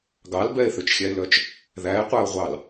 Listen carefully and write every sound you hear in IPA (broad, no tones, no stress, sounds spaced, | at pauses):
ɡ ɑ l b ɛ e̯ θ ø t͡ʃ xʲ æ e̯ l œ t͡ʃ | ð æ e̯ qʷ æ o̯ ʁʷ ɑ l